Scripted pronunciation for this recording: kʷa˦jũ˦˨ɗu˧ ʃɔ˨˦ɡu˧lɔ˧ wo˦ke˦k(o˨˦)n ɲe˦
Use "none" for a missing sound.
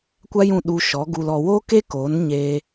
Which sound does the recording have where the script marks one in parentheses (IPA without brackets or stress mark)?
o˨˦